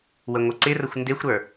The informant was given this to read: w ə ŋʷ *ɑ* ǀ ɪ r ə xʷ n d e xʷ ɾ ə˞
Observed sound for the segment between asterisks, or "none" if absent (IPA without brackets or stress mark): ə